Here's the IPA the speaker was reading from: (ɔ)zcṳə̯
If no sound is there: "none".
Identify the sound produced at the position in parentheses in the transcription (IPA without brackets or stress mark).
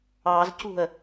ɑ